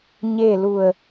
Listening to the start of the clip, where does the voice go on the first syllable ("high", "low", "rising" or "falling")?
falling